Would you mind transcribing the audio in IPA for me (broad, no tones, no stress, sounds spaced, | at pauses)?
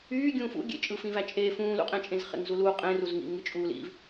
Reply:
yː ɡʲ ũː f ṵ ɡʲ ḛ t͡ʃʼ ɯː f ĩ v æ t͡ʃʼ eː f ũː l ṵ qʼ ẽ t͡ʃʼ ẽ z χ ḛ ŋ z u l uː qʼ ẽ r u z ŋ ḭ ŋ ɯ t͡ʃʼ uː l ḭ v